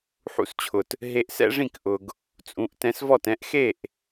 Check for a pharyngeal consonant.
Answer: present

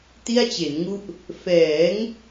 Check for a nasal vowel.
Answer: absent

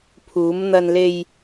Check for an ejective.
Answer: absent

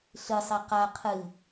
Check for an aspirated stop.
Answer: present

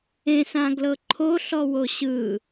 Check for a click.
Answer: present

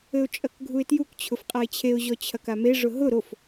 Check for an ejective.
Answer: present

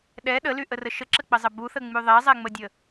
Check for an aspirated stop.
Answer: absent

